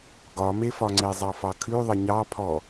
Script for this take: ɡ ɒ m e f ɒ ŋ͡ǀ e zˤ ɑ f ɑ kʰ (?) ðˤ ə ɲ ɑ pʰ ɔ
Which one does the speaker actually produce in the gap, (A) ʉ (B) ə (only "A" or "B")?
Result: A